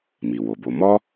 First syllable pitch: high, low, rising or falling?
low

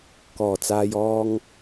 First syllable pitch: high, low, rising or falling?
low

